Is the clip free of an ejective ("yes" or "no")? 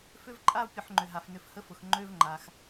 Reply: no